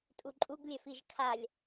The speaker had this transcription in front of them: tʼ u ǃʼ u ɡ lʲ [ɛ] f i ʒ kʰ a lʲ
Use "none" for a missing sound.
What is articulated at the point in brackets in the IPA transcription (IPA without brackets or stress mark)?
œ